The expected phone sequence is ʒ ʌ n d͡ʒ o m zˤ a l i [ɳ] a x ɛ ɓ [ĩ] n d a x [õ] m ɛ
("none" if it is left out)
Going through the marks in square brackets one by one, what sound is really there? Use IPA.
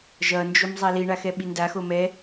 ɳ, i, o

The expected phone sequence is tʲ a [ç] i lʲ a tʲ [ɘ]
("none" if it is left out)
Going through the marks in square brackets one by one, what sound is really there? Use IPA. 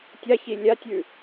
ç, ʉ

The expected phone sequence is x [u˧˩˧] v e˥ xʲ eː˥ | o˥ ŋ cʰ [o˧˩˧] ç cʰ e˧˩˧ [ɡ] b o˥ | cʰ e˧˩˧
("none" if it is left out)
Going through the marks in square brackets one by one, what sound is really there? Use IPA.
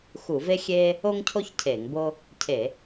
u˧˩˧, o˥, ŋ

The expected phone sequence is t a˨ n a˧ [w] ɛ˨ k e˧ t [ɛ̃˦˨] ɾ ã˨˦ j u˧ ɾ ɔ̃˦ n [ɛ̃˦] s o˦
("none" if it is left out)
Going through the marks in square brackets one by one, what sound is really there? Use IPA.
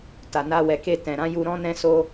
w, ɛ̃˨, ɛ̃˦

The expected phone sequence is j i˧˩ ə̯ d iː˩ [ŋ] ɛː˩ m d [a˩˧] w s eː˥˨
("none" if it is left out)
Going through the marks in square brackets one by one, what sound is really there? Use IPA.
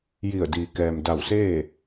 k, a˧˩

